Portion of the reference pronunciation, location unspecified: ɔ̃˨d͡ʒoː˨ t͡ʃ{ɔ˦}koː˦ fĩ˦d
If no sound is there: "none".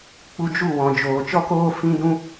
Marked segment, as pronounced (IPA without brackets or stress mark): ɔ˦